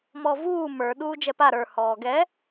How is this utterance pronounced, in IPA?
m ɔ v uː m ə˞ ɗ uː d͡ʒ ɛ p a ɾ ə˞ h ɔː ɡ ɛ

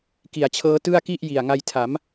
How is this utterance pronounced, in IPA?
k i˨˩ a̯ t͡ɕʰ ɤː˦˥ t ɯ˥˩ a̯ k i˥˩ ʔ j i˨˩ a̯ ŋ a˧ j tʰ a˩˦ m

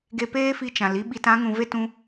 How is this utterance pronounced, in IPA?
ɡ e˧ p eː˦ f i˧ t͡ʃ ã˨ l i˦ ɓ i˧ t ã˨˦ ŋ ũ˨ v e˦ t ũ˧

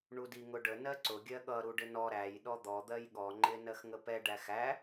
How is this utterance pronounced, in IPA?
ɳ u d i ŋ ʊ ɖ ə n ɜ ǀ ʊ ɡʲ ɜ ɠ ʌ ɾ u ɖ ɪ n ɔ ɾ æ j ɗ ɔ d̪ ɔ d̪ ɜ j ɠ ɔ ŋ͡ǃ ɪ n ɜ x ŋ ə p ɛ ɖ æ x æ

